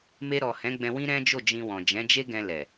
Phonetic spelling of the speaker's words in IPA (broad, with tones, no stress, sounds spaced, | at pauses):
m e˧ ɾ ɔ˨ h ɛ̃˨˦ ɡ͡b ɛ̃˧ w ĩ˦ ɾ ɛ̃˦ d͡ʒ o˦˨ d͡ʒ ĩ˧ w ɔ̃˨ d͡ʒ ɛ̃˨˦ d͡ʒ e˦ ɡ ɛ̃˧ l ɛ˨